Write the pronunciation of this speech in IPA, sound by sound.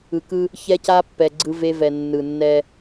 ɯ˨ k ɯ˦ | ç ɛ˦ c a˦ pː ɛ˨ ɡ͡ǀ ɯ˦ v e˦ v ɛ˨ nː ɯ˨ nː ɛ˦

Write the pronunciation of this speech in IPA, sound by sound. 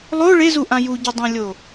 lˠ o ɭ e z u ʔ ã j u ɟ ɵ dˤ ã lʲ o

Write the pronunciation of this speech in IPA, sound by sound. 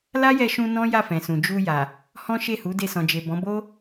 l a˦ j ɛ˧ ʃ ũ˧ n ɔ̃˦ j a˦˨ f ɛ̃˨ s ũ˨ d͡ʒ u˧ j a˨ | h ɔ̃˦ ʃ e˦˨ h u˨˦ d e˧ s ɔ̃˨ d͡ʒ e˨ b ɔ̃˨˦ b o˦

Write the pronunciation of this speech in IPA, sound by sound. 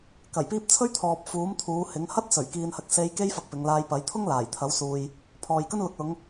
k ɐ˨˩ j p iː˧ p̚ t͡sʰ ɵ˥ ɥ t̪ʰ ɔː˨ p̚ f uː˨˥ m t̪ʰ uː˨˧ h ɪ˨˥ ŋ h ɐ˥ t̚ s ɵ˨˩ ɥ k iː˨ n h ɐ˧ k̚ s e˧ j k e˥ j f ɐ˧ k̚ p ɪ˨˧ ŋ l aː˧ j p ɐ˨˥ j t̪ʰ ʊ˥ ŋ l aː˨˩ j t̪ʰ ɐ˨˥ w s uː˨ j | pʰ ɔː˨ j k ɵ˥ n l ʊ˨˥ k̚ l ʊ˨˧ ŋ

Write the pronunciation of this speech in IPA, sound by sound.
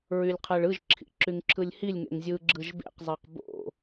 ɹ y lʲ qʰ ɛ ɭ ɯ ʒ ǁʰ ḭ ǁ y ŋ ǁʰ ɯ lʲ h i lʲ ŋ ḛ ŋ zʲ ɯ ɡ͡ǁ ɯ ʒ b ḛ q zˤ e q b o̰

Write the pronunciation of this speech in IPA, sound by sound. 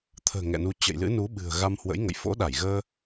t̪ʰ ə̤ː˨˩ ŋ ɛ̰˧˨ n u˧ t͡ɕ ə̰˧˨ j l ɨ̰˧˥ n u˨˦ ɓ ɨ̤˨˩ ə̯ ɣ a˧ m h w ə̰˧˥ j ŋ ə̰˧˨ j f o̰˧˥ ɗ a˧˩ j ɣ əː˧

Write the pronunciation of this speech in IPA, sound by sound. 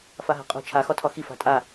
f a ɦ a̤ qʼ o̤ t͡ʃʰ a x ɒ tʰ ɒ x i f a̤ tʼ a

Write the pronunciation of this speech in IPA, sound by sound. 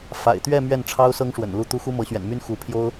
f a̰˨˩ ɪ̯ t̪ ɥ ɛ˥˧ m ɥ ɛ˥˩ n ʈ͡ʂʰ ɑ˥ ʊ̯ s ɤ˥ ŋ ʂ w ə̰˨˩ n l u˥˩ t̪ u˥ x u˥ m ɤ˧˥ ɕ ɥ ɛ̰˨˩ n m y˥ n x u˧˥ pʰ j o˥ ʊ̯

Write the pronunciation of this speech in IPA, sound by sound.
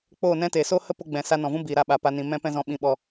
k͡p oː˦˨ n ɛ̃˦ t eː˨ s oː˦ h ə˦ p o˧ ɡ͡b ɛ̃˨ s a˧ n ɔ̃˨ v ũ˦ b iː˨ ɾ a˧ ɓ a˧ p a˦ n ĩ˧ m ɛ̃˧ p ɛ̃˧ z ɔ̃˧ ɓ ĩ˨˦ ɓ ɔ˧

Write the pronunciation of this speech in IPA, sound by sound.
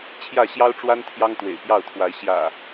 t͡ɕʰ j ä˥˨ ɕ j ɑ˦ ʊ̯ ʈ͡ʂ w a˦ n t̪ʰ j ɑ˦ ŋ t̪ w ḛ˨˩ ɪ̯ p j ɑ˥˨ ʊ̯ t̪ʰ w a˨˦ ɪ̯ ɕ j ä̰˨˩

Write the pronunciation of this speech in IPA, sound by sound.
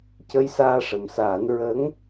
c ə˧ j s aː˧ ʂ ə˨˩ m s aː˨˩˦ n ɹ ə˧˥ ŋ

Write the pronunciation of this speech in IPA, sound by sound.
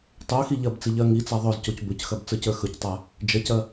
tˤ o x i ʎ ɐ b t͡s i ʎ ɐ ŋ i t͡s a ðˤ ɵ z c o c b ɵ c x ɐ b t͡s ə˞ c ə˞ x ɵ c tˤ a | d͡ʒ ɐ c ɐ

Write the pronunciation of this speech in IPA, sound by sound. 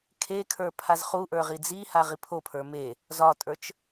kʰ e kʰ ə˞ pʰ a z χ u ʔ ə˞ ʁ i d͡z i h a ʁ i pʰ o pʰ ə˞ m e | z ɒ tʼ ə˞ t͡ʃ

